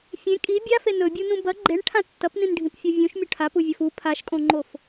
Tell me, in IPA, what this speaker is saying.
fʲ ẽ kʼ i bʲ a f e n ɵ bʲ u n ũ b ɐ ɡ͡ǃ e ɳ ʈʰ ã tː ɐ p n ĩ n ɖʱ ĩ p fʲ o vʲ ũ ʃ mʲ ɵ ʈʰ a p u vʲ ɐ f u pʰ a ʃ kʼ õ ŋ͡ǃ o f

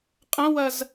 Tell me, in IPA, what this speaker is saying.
qʼ ɐ̃ w ɐ z

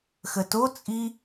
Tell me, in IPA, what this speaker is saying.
x ə t o t͡sʼ i

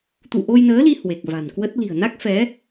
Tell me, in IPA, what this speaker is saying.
t̪ ṵ˧˨ ʔ o˧ j n əː˨˦ l i˧ h w e˨˩ k̚ v a̤˨˩ n k w ə˦˥ t̚ l i̤˨˩ ə̯ n a˦˥ k̚ f ɛ˨˦

